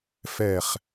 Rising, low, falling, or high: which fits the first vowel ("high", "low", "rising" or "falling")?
falling